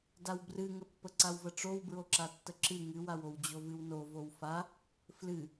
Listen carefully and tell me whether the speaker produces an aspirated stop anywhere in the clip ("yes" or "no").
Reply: no